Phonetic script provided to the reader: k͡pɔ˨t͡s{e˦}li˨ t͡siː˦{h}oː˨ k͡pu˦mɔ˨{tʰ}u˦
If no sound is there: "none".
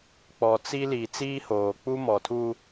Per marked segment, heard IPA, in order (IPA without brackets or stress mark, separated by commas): i˦, h, tʰ